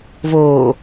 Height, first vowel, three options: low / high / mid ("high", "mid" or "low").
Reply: mid